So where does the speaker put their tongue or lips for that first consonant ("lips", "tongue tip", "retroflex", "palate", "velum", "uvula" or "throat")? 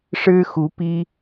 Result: retroflex